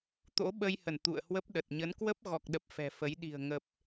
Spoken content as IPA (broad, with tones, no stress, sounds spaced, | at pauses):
t̪ o̰˧˥ ɓ ə˧ j h ə˧˩ n t̪ ṵ˧˨ ə̯ h w ə˦˥ p̚ ɗ ə˨˩ t̚ ɲ ə˨˦ n k w ə˦˥ p̚ ɣ ɔ˨˩ k̚ ɗ ə˨˩ p̚ f ɛ̤˨˩ f ə˨˦ j ɗ i̤˨˩ ə̯ ŋ ə˨˩ p̚